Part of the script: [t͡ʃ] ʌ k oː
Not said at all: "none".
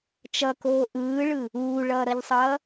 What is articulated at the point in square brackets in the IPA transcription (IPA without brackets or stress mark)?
t͡ʃ